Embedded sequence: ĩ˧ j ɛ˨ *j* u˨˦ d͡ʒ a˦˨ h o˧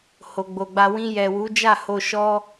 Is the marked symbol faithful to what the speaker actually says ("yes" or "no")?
no